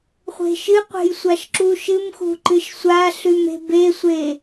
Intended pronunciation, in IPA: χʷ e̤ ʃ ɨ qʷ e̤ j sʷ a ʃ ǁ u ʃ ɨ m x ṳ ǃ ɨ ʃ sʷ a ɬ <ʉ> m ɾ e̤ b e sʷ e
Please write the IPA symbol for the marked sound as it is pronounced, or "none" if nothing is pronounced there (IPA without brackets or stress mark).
ʉ